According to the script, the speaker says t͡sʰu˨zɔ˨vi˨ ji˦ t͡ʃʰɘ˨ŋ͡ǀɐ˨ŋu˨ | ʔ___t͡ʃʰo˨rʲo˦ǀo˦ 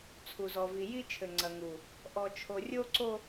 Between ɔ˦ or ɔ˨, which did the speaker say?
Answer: ɔ˨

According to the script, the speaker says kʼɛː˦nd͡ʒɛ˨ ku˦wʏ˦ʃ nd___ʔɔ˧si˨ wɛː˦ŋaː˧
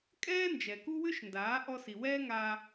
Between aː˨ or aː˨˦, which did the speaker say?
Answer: aː˨˦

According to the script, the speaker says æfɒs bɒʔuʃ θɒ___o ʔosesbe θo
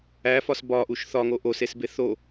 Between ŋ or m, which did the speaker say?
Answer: ŋ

